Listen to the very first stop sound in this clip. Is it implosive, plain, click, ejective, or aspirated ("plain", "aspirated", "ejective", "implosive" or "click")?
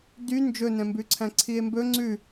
plain